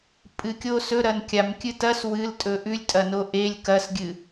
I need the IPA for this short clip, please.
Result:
pʼ ɨ kʲ o s ɵ ɾ ɐ n kʲ a m kʲ ɨ t ɐ s w ɨ l tʼ ɵ ʔ ʉ lʲ tʼ ɐ n o ʔ e lʲ k ɐ s ɡʲ ɨ

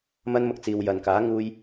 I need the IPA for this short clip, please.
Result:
m ɐ˧ n m ʊ˨ k̚ t͡s iː˨ w j ɐ˨ n k aː˨˥ ŋ uː˧ j

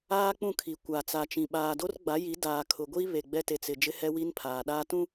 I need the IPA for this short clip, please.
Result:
aː˦ k͡p ũ˦˨ kʰ i˨ kʷ a˨ t͡s a˨ t͡ʃ ĩ˨ ɓ aː˨ d o˦ r ɡ͡b a˨˦ j i˨˦ d aː˨ kʰ ʊ˨ ɡʷ i˦ β e˨ ɡ͡b ɛ˦ t e˨ t͡s ɪ˨ d͡ʒ ɪ˦ h ɛ˦ w i˦ n pʰ aː˨ ɗ aː˦ t ũ˦

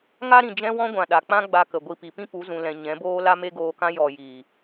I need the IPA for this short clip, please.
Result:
ŋ a˦ ɾ ĩ˨ d͡ʒ ɛ̃˦ w ɔ̃˦ ɡʷ ã˨ ɗ a˨ k͡p ã˦ ɡ͡b a˧ k ə˨ ɡʷ i˧ p i˨ p ĩ˦ p u˨˦ z ũ˨ l ɛ̃˨ ɲ ɛ̃˨˦ b oː˦ l a˦ m e˦ ɡ oː˧ k ã˦ j ɔ˨ j iː˨

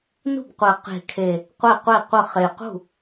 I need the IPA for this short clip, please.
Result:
n ṳ˥˩ b qʷ ɛ˨˩ q e̤˨˩ kʰ e˨˩ | qʷ ɛ˥˩ qʷ e˥˩ qʷ ə˥˩ χ e˨˩ q ṳ˥˩

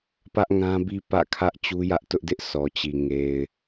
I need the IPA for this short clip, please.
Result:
p ä˦ ʔ ŋ ã˦ b i˦ p ä̰˦˨ kʰ ä˦ ʔ t͡ɕ u˦ j ä˦ ʔ t ʊ˦ ʔ d ɪ˦ ʔ sʰ ɔ˨ t͡ɕ i˨ ŋ e˨ ɪ̯

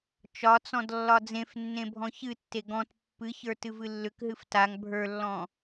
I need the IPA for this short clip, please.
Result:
t͡ʃ ɒ t͡s ɔ̃ d lː ɒ d͡z ẽ f nː ẽ bʱ ɔ̃ ç ɨ tː e ɡ ɔ̃ t pː ɨ ç ə˞ t ɨ v ɨ lː ʏ k ɦ ɨ f t a ŋ bʱ ə˞ lː ɔ̃

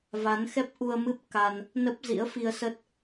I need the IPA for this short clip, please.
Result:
v a˨˦ n x ɛ˦˥ p̚ ʔ u˧ ə̯ m ɨ˦˥ p̚ k a˧ n | n ə˦˥ p̚ z ḭ˧˥ ə̯ f i˧ ə̯ s ə˦˥ t̚

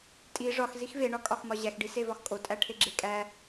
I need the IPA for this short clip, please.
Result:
tʼ i ʐ ɒ x z i x v e ɳ ɒ kʼ ɒ x m ɒ ʑ æ x ɖ i s e v ɒ x kʼ o tʼ æ ʈʰ e ɡ͡ǁ e kʼ æ

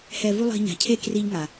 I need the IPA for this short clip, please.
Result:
h ɛ˧ v u˦ lˠ i̤˧ ɲ a̤˨ cʰ e˦ k r i˦ ʎ ŋ a˨

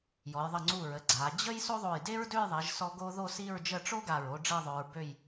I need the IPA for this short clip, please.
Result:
j ɔ˩˧ j ðˤ ə˧˩ ŋ͡ǀ u˧˩ ɹ ə˩˧ ɡ͡ǀ a˩˧ d͡ʑ ə˥ j s o˥ ðˤ o˧˩ j d e˥ ɹ d ø˥˧ j ðˤ e˩˧ ʒ s ɔ˧ ɡ o˥ ð o˥˧ s i˥˧ ɹ d͡ʒ ə˥˧ ʈ͡ʂ o˥ ɡ a˧˩ ɹ o˧ ɖ͡ʐ e˥˧ ðˤ ø˧ ɹ b ø˥˧ j

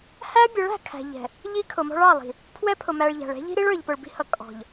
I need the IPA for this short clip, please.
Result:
h æ˦ bʲ ə˨˦ ɭ æ̤˨ kʰ æ̤˨ ʎ ɛ̤˨ | ʎ i˦ kʰ ʊ˨ m ɔ̤˦ ɭ ɑ˦˨ lˠ i̤˨ | pʰ w ɛ˦ pʰ ʊ˨ m æ˨ ɭ ʎ æ̤˨ ɭ ɛ̤˦ ʎ i̤˦ ɾ i˦ ɭ ə˞˨ ʎ p ʊ˨ ɭ b i̤˦ h ʌ˨ kʼ ɔ̤˨ ʎ

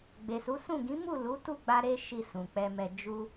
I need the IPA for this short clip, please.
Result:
ɡ͡b e˨ s u˨˦ s ũ˦˨ ɡ ĩ˨˦ m u˦˨ l u˨˦ t u˦˨ ɡ͡b a˧ ɾ e˦ ʃ i˧ s ũ˨ k͡p ɛ˧ m ɛ˧ d͡ʒ u˦

